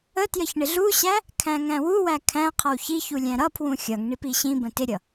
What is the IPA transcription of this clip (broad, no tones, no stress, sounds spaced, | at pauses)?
ə t j ə ç ɳ ɪ ɮ u ɕ æ | kʰ æ̃ ŋ æ̃ w u w æ kʰ æ̃ qʰ ʌ w ç i ç u lʲ æ̃ ɾ ʌ pʰ w ũ xʲ ʌ ŋ ɳ i p i ɕ ĩ b ə̃ t ɪ ɾʲ ʌ